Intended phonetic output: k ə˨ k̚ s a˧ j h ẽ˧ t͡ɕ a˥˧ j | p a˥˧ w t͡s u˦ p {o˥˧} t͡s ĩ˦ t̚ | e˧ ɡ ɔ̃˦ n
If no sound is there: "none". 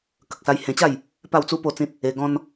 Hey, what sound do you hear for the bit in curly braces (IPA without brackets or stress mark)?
o˥˧